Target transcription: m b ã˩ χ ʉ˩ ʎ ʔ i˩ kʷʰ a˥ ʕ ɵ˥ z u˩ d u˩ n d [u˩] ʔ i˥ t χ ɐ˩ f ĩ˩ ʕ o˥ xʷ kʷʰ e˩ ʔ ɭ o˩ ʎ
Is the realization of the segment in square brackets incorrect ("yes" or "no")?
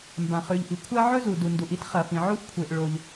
no